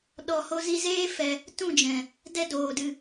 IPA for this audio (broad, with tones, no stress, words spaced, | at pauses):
ɗɔ˨ho˧ zi˧zeː˦ fɛ˧ | tũ˦˨d͡ʒɛ̃˨ | dɛ˦ doː˨dɨ˧